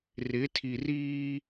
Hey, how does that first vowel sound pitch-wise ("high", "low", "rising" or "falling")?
rising